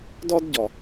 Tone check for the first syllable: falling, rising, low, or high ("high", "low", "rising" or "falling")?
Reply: high